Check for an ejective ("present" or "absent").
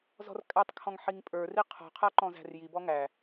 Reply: present